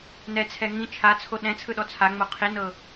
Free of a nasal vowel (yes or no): no